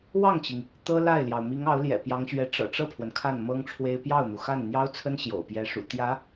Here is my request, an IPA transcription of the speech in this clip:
w ɑ˥˩ ŋ t͡ɕ i˩ ŋ | t̪ ɤ˥ l a˥˩ ɪ̯ l j ɑ˩ ʊ̯ m i˧˥ ŋ ɑ˧˥ ʊ̯ l j ɛ̰˨˩ p j ɑ˧˥ ŋ ɕ ɥ ɛ˧˥ ʈ͡ʂ ɤ̰˨˩ ʈ͡ʂ ɤ˥˩ pʰ w ə˩ n kʰ a˥˩ n m ɤ˥ ŋ ʈ͡ʂʰ w e˥ ɪ̯ p j ɑ˥˩ ʊ̯ n̪ u˩ x a˥˩ n n̪ j ɑ˥ ʊ̯ t͡sʰ ə˥ n ɕ j o̰˨˩ ʊ̯ p j ɛ˧˥ ʂ ṵ˨˩ t̪ j ä˧˥

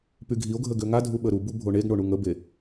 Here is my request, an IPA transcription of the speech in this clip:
p y ɡʱ i o̯ ɡʱ ə ɡ ø ŋ a dʱ u ɓ ə ɾ u b u bʱ o ɳ e ɡ ɳ o ɳ u ŋ ə b e

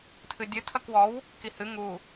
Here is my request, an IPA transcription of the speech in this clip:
tʰ ɨ dʲ ɨ tʰ ɐ k w ɔ w | k i h ɨ ŋ u

